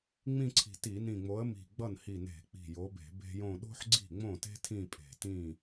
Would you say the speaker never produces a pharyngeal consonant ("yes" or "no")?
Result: no